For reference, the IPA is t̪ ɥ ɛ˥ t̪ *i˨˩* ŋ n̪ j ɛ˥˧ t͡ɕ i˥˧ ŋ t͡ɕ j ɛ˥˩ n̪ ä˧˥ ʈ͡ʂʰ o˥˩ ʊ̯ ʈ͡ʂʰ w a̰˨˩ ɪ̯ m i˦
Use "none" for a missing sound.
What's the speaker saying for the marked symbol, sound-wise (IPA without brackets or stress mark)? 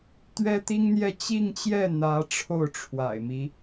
i˥